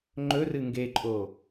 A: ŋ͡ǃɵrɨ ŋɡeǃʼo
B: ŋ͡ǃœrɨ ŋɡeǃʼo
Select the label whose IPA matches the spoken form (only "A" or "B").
A